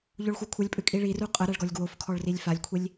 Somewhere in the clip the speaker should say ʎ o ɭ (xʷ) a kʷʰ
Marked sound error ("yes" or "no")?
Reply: no